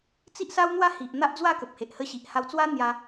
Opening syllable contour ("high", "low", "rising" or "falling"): high